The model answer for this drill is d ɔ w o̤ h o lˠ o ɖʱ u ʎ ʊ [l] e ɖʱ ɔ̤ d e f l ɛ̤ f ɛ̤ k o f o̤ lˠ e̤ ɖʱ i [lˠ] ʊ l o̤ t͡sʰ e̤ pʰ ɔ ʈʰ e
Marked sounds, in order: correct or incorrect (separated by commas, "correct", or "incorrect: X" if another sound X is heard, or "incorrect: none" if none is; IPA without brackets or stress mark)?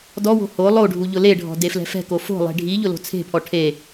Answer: correct, incorrect: ʎ